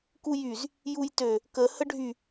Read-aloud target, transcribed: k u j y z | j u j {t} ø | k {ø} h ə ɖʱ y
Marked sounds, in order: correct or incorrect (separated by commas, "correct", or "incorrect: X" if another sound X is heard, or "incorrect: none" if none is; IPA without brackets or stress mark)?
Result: correct, incorrect: ə